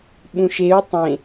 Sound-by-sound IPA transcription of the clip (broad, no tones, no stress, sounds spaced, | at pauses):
ɓ ũ ʃ e u̯ tˤ ẽ